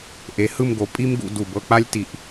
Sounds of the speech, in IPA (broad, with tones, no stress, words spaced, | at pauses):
ʔe˩˧hɯ˥˧mɡo˩˧ pʼi˥m ɡṵ˧du˧˩ bɤ˧k͡pa˥lʲti˧˩ʔ